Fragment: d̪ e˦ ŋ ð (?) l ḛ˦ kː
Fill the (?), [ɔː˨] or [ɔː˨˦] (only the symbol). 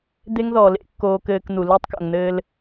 ɔː˨